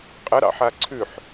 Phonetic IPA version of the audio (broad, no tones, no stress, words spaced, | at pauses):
qʼə ɾɑ̰ħaǀʰʉħ